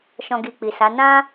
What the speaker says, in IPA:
ʃ ɔ̃˨ ɡ i˨ k͡p i˨ s a˨˦ n ã˦

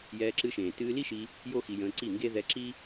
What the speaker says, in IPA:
j ɛː˧ ǁ ɨ˧ ʃ ẽː˨ t ɨː˧ l i˦ ʃ i˧ | j o˦ x i˧ j ə̃ː˧ ǀ i˦˨ ŋ ɡ e˦ ð ɛ˧ ǁ i˦

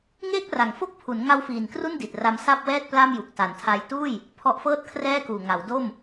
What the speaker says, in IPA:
ŋ eː˥˩ k̚ r a˩˦ ŋ f o˥˩ k̚ pʰ u˩˦ n ŋ a˦˥ w f iː˨˩ n k r u˥˩ n d i˨˩ t̚ r a˦˥ m s a˥˩ p̚ w ɛː˥˩ t̚ p l a˥˩ m j u˨˩ k̚ t a˨˩ n tʰ a˧ j t uː˥˩ j | pʰ ɔ˦˥ ʔ f ɤː˥˩ t̚ kʰ r ɛː˥˩ k uː˨˩ ŋ a˩˦ w d o˥˩ m

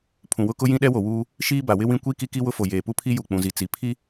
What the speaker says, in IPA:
pʰ ũ˨ w ʊ˦ k ʊ˦ j ĩ˦ ɗ ɛ˦ w o˨ w uː˦ | ʃ iː˦ b a˨ w ɪ˦ w ĩ˦ kʷ i˦ k i˦ k i˦ w ʊ˦ f o˨ j eː˨ p u˦ pʰ i˦ j u˨ k͡p ũ˨ z i˨ t͡s i˨ pʰ i˦

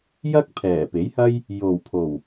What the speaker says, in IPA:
j ɐ˥ k̚ pʰ ɛː˨˩ p e˨˥ j h ɐ˥ j | j o˨˩ w pʰ o˨˩ w

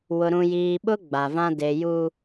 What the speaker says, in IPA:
w ʊ˨ ɾ ũ˨ j iː˨ ɓ ʊ˦ ɡ͡b a˨ v ã˦ d e˨ j u˦

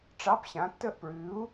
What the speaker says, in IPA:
ʈ͡ʂ ɑ˧˥˧ p ɕ ã˨˥ tː ə˥˧ ʔ p ɹ ʉ˨˥ u̯

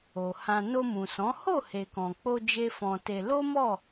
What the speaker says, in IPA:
o˨ h ã˧ n o˧ m ũ˨ s ɔ̃˨˦ h o˦˨ h e˨ k ɔ̃˨ k͡p o˧ d͡ʒ e˦ f ɔ̃˧ t e˧ l o˦ m ɔ˦˨

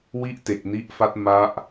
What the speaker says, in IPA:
w i˥˩ ʔ t e˨˩ k̚ n i˦˥ ʔ f a˦˥ t̚ m a˦˥ ʔ

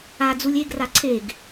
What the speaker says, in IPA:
a d͡z u lʲ e ɡ r a ǀʰ e ɡ

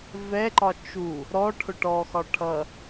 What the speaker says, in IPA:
v ɛ ǃ ɒ t͡ʃ u | ɾ ɔ ʈʰ ʊ ʈ ɔ x ɒ ʈʰ ʌ

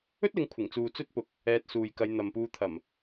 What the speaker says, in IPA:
ɵ˥ t̚ l ɪ˨˧ ŋ kʷʰ ɪ˨˩ ŋ t͡s uː˨ t͡s ɵ˥ t̚ p ʊ˨˥ k̚ | ɛː˧ t̚ s uː˨ j k ɐ˨˧ j n̪ ɐ˨ m p uː˧ t̪ʰ ɐ˨˩ m

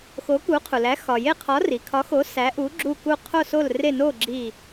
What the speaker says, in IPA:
x o˨˥ k u˨˥ qʰ u˩ l æ˨˥ x ɒ˩ j e˦˨ qʰ ɒ˨˥ r i˩ kʰ ɒ˨˥ x o˨˥ s æ˨˥ ʔ u˨˥ ɡ͡ǁ u˦˨ k u˦˨ qʰ o˦˨ s o˦˨ l r e˦˨ n o˦˨ ɡ͡ǁ i˦˨

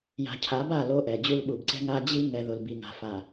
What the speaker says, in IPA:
j a̤˨ cʰ a˨˦ b a˦˨ l o˦ ʔ ɛ˨ d͡ʑ u˦ l ɓ u˨ b ǀ ɛ̤˦ ŋ a˦ d͡ʑ i˦ ŋ ɛ˨ ð ʊ˨ l b i˨ ŋ a̤˨ f a˨

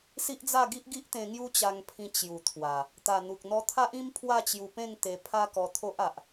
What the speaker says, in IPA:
s i˦ ʔ d͡z a˥˧ ɡ i˦ ʔ ɡ i˦ ʔ t̪ ẽ˧ ŋ j u˦ t͡ɕ a˧ ŋ pʰ ĩ˧ t͡ɕ j u˨˩ t̪ʰ w a˨˩ | t̪ a˨˩ n̪ u˨ k̚ n̪ ɔ˧ t̪ʰ a˦ ʔ ĩ˦ m pʰ w a˥˧ t͡ɕ j u˧ p ẽ˥˧ ŋ t̪ e˧ pʰ a˦ k ɔ˧ t̪ʰ o˦ ʔ a˨ ʔ

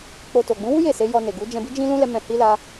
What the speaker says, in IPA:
k͡p o˧ t o˨ ɡ͡b ũ˨˦ w u˦ j e˦˨ s e˨˦ j ɔ˧ n e˨ ɡ u˨˦ d͡ʒ ɛ̃˧ b i˦ d͡ʒ ĩ˦ l ũ˦ l ɛ˧ m ɛ̃˧ h i˦ l a˧

